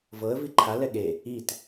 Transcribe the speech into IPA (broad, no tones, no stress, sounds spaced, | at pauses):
v ɤ ə̯ v i ǃʰ a l ɛ ɠ e | i t